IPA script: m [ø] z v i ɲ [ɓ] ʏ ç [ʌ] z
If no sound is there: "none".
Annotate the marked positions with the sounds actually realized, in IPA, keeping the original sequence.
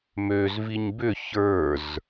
ø, b, ə˞

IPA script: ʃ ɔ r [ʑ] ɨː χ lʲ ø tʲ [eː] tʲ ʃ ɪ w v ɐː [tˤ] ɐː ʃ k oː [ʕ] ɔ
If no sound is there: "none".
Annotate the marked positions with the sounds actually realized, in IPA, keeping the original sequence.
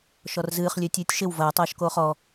z, ɨː, tˤ, χ

